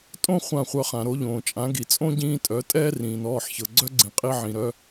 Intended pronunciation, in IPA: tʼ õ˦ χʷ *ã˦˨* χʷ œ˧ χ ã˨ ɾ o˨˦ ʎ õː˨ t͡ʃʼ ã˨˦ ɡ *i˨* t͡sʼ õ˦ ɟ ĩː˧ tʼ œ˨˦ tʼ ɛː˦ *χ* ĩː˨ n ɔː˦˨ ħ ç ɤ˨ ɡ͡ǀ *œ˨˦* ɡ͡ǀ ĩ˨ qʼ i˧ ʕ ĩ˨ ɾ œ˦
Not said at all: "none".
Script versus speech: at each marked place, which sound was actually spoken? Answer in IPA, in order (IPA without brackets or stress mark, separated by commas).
ã˦˨, i˨, r, œ˦